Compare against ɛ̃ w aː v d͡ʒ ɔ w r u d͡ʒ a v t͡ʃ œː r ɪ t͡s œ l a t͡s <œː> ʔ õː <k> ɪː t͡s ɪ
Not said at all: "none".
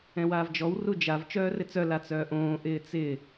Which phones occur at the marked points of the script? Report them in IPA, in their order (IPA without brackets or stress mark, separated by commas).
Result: œː, ʔ